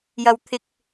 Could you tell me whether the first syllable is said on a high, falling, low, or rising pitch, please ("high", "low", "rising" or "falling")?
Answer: high